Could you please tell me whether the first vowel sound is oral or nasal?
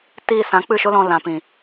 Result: oral